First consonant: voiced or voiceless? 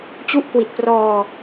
voiceless